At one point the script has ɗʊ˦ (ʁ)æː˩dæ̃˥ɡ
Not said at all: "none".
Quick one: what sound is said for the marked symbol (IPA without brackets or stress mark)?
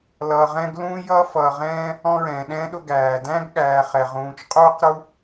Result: ɡ